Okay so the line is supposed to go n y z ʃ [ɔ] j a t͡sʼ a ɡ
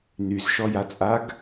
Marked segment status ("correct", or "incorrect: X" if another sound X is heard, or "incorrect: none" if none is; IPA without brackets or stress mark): correct